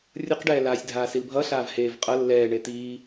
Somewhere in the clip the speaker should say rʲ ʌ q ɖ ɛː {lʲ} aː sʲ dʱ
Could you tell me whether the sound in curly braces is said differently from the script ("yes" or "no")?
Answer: yes